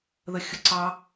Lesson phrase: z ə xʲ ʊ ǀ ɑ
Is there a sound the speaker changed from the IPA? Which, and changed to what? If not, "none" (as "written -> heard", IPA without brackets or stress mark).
z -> ð